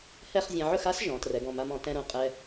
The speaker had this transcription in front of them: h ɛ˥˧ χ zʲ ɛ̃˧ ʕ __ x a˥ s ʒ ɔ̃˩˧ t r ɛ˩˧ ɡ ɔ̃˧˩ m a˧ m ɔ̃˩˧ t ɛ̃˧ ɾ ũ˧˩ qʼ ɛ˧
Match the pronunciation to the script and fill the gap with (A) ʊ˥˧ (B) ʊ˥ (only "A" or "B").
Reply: A